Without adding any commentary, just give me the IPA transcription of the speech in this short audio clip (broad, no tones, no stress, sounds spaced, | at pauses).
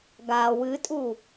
ɡ a w ɨ tʼ u